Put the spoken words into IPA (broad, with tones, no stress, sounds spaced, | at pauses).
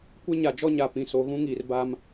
kʷ ɛ˦ ɲ a˨ d͡ʒ ɔ˦ ɲ a˨ p ĩ˨ s o˨ ɣ ũ˦ ŋ iː˨ r b a˦ m